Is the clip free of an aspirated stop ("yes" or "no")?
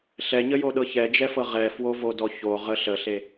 yes